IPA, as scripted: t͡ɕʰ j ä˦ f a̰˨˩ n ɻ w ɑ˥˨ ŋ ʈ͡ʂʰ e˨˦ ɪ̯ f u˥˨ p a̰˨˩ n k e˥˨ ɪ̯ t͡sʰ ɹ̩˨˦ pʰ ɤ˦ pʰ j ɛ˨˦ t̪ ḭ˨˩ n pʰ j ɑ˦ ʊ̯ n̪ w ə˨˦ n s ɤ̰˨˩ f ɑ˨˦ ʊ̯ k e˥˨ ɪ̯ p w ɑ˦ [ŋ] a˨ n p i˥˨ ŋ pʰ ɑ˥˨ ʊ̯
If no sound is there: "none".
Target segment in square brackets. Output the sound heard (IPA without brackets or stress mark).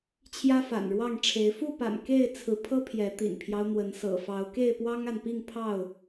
ŋ